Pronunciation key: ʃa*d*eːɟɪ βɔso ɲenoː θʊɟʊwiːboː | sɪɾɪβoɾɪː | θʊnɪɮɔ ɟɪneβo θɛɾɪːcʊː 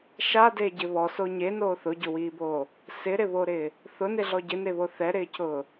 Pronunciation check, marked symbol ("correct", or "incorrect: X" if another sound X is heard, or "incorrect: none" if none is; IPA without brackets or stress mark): correct